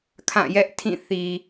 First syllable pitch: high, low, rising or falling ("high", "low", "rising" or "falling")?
falling